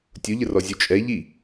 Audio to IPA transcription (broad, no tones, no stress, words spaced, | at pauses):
tʲʊʎərɔzʲu t͡ʃʼɛ ʎi